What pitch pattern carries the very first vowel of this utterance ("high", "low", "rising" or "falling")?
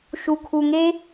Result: low